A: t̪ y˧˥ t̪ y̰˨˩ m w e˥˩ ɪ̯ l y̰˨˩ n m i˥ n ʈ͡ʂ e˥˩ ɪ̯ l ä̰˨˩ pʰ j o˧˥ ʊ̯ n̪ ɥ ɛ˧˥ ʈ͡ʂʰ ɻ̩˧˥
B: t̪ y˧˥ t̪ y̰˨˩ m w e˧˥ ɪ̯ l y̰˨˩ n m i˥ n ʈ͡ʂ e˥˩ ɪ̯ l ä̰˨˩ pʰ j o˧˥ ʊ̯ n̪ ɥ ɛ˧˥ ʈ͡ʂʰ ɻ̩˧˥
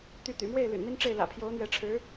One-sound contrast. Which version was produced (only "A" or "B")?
A